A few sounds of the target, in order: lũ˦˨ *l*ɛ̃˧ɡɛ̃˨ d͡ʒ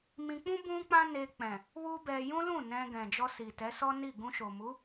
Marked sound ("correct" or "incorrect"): incorrect